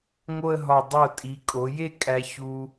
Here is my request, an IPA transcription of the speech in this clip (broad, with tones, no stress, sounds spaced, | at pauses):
ŋ o˥˧ ə̯ ɦ ɒ˧˩ dˤ o˧˩ tʼ i˩˧ kʼ o˩˧ j e˥˧ kʼ æ˧ ç u˧